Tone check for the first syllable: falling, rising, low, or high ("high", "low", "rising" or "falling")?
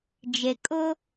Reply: low